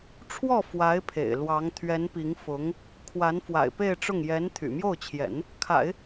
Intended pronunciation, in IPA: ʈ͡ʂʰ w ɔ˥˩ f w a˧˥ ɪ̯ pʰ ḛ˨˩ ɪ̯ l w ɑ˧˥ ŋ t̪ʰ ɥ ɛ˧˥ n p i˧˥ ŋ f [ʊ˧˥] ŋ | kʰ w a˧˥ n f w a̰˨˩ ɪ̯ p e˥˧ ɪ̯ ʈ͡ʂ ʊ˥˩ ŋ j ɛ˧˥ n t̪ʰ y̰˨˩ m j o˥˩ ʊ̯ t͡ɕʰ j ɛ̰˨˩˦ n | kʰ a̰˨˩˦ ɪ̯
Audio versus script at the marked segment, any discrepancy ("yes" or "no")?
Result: no